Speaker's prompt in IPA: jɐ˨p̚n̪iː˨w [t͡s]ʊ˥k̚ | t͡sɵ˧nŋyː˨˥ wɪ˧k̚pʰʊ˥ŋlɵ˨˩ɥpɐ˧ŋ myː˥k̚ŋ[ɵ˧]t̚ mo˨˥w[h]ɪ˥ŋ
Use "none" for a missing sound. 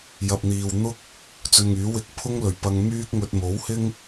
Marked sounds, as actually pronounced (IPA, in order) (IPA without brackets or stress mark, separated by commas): n̪, ɵ˧, h